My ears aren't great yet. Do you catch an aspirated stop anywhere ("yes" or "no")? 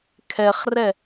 yes